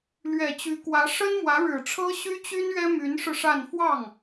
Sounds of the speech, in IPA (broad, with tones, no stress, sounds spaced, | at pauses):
l ɥ ɛ˨˩ t͡ɕ y˧˥ k w ä˧˥ ʂ ə˥ n m w ä˧˥ ɻ ɻ̩˨˩ ʈ͡ʂʰ ɤ˥ ɕ y˥ t͡ɕ y˥ n ɥ ɛ˥ m y˧˥ n ʂ ɻ̩˧ ʂ a˥˧ n f w ɑ˥˩ ŋ